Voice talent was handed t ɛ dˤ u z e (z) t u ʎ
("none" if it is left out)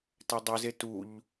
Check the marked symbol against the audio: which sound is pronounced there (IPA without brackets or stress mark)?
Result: none